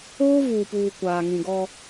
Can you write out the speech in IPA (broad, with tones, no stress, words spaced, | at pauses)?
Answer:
oː˦vuː˨puː˨ kʷaː˨ŋĩ˨ɡɔ˦